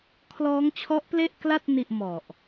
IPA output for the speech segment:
kʰlɔː˦˥ŋt͡ɕʰɔ˦˥ʔple˥˩ʔkla˥˩t̚ ni˥˩ʔmɔ˨˩ʔ

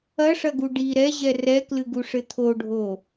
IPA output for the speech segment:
ɐʂɐɡu ɖi ɾɛʑɛ rɛklɨɡuʂɘ t̪ʰoɖʱo

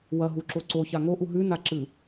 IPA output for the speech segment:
wɐɦuǁo ǀoça ŋoʔu ɦʉnaǁɨ

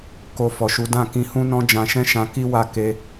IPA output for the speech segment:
ko˧fɔ˨ʃu˨˦ dã˦˨kĩ˧hũ˦nɔ̃˦ d͡ʒã˧ʃɛ̃˦ʃã˧ ki˦wa˦˨ ke˧

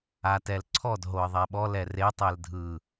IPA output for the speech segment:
atɛlǀʰɔd ɦoə̯ðˤɛɓɔ lɛre tˤɛldʱɯ

